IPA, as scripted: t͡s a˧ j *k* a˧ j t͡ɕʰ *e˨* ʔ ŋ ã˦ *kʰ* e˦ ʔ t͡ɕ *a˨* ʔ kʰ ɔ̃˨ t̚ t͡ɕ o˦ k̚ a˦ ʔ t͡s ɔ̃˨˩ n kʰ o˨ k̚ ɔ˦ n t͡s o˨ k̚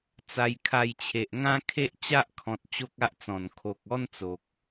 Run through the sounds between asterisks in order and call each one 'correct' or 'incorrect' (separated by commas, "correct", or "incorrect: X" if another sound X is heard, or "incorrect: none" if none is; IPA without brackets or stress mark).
incorrect: kʰ, correct, correct, incorrect: a˦